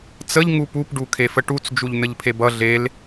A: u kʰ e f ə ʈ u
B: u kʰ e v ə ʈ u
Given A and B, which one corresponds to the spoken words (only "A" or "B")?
A